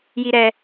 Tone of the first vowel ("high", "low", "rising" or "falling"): high